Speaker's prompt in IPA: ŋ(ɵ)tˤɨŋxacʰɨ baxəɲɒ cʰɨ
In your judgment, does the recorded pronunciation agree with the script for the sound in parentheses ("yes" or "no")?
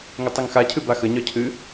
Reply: yes